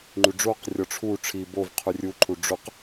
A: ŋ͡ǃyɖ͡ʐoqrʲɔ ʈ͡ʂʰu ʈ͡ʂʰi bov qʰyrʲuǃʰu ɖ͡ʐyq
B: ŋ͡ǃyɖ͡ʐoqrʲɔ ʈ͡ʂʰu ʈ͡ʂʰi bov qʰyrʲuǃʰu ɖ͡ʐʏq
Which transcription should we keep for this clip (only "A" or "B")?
B